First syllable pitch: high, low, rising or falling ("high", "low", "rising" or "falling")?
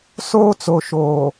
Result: high